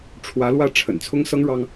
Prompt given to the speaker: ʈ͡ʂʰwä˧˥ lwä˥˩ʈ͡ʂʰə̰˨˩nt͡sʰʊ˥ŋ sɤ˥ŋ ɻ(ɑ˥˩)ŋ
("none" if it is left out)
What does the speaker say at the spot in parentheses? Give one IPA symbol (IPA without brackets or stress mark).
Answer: ɑ˥